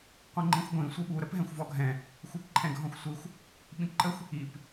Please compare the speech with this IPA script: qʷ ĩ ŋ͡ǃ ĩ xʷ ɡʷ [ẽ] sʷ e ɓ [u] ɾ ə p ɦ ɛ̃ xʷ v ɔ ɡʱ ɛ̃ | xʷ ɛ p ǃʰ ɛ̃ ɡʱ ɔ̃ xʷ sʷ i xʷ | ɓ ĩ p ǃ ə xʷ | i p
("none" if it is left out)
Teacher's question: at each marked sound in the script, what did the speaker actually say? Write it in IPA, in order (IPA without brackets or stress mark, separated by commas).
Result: ĩ, u